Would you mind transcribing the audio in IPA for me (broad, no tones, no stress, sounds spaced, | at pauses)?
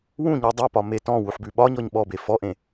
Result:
w ũ ɲ ʉ dˤ o p ɒ m e t ɔ̃ w u ħ b ʉ ɓ ɒ ɲ ɔ ɲ ɓ ɔ b e f ɔ ʔ ẽ